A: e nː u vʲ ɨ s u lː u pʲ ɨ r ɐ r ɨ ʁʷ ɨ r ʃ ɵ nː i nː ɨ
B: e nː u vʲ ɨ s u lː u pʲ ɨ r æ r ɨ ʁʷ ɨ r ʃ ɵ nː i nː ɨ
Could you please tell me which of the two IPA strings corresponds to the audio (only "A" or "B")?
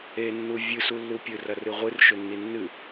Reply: A